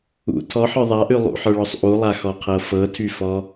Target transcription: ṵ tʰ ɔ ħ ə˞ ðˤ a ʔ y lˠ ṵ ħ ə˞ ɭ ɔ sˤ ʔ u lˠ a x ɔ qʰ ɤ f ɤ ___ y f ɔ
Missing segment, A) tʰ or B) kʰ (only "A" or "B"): A